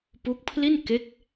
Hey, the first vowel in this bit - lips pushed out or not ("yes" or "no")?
yes